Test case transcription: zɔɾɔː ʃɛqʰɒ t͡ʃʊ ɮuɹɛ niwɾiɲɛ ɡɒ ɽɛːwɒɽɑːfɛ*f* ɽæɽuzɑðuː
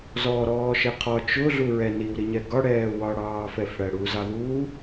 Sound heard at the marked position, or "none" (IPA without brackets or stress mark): f